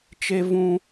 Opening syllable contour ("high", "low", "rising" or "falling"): high